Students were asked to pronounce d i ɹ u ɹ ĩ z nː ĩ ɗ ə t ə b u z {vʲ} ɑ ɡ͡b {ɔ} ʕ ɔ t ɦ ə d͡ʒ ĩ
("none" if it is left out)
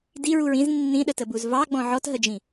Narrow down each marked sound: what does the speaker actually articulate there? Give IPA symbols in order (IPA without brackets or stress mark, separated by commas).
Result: v, ɔ̃